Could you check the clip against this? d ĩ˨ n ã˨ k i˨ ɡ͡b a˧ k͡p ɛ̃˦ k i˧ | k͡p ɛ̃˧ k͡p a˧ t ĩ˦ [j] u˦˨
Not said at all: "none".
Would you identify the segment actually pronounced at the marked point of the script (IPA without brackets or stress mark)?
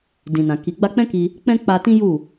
j